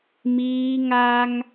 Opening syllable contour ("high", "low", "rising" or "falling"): high